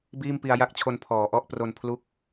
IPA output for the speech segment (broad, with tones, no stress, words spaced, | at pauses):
biː˥˩mpi˧a̯ja˥˩k̚t͡ɕʰo˧n pʰɔː˩˦ʔɔ˦˥ʔpro˧npʰlu˦˥k̚